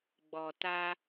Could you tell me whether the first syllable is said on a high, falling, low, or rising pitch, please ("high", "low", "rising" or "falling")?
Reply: low